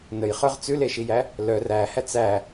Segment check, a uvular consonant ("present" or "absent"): present